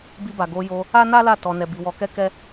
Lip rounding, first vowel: unrounded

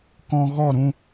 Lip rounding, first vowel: rounded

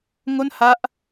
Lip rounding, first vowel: rounded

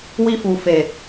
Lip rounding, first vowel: unrounded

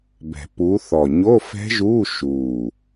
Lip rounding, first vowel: unrounded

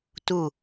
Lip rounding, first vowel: rounded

